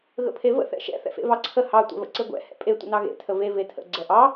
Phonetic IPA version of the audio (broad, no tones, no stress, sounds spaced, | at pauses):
ɣ ə̰ pʰ e v ə̰ θ ɛ̰ ʃ ɛ̰ θ ɛ̰ f ḛ v ɑ ǀʰ ə h ɑ tʷ ɛ̰ v ə̰ ǀ e ɡʷ ɛ̰ h ɛ̰ pʼ e tʷ ə̰ n ɑ ɣ ḛ tʰ ə v e v e tʰ ə̰ ɡ͡ǀ ɛ ʔ ɑ